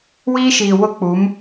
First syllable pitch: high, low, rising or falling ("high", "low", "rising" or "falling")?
high